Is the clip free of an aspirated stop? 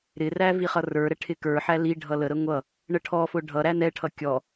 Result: no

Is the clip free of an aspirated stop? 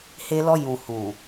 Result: yes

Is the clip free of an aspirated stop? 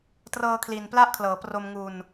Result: no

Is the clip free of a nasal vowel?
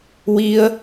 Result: yes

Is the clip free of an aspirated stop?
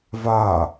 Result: yes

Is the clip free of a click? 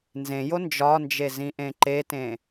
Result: no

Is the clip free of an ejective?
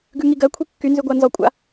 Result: no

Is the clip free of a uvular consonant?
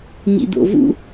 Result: yes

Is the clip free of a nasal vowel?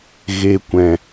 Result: no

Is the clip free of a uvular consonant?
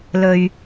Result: yes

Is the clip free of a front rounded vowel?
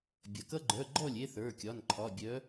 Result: no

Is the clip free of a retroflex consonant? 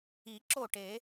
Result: no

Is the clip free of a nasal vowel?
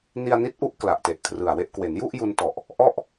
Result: yes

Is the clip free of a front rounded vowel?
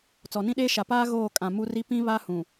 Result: yes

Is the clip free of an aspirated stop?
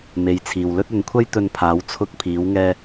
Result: no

